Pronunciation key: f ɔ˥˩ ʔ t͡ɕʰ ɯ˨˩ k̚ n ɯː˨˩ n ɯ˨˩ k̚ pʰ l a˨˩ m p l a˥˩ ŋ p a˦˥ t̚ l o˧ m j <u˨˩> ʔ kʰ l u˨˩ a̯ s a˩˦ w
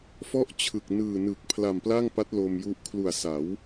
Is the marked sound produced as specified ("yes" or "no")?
no